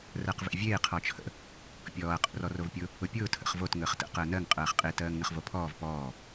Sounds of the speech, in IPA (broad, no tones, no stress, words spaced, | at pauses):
rɜqvḛvʲeː qʰɔt͡ʃʰə̰ | pʲɔːɐ̯ qʼo̰rɔrovpʲʊ | ʊpʲʊː tʰə̰χvot ŋəːχtə̰ qəːnɜŋ qʼɜːχqʼe tɜːŋnəχvopʰɔːv pɔː